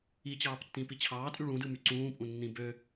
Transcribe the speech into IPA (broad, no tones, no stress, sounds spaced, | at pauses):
i t͡ɕ ɑː p tː ĩ p i t͡ɕʰ ɑː tʼ y ɭ ũ d ɯ m y ǀ ũː pʼ ũ nː ĩ b ø